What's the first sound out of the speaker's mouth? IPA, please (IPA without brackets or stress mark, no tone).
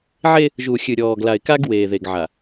ʕ